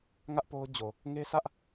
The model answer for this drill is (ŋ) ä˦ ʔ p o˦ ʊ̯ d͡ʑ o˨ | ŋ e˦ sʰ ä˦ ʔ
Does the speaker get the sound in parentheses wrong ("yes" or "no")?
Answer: no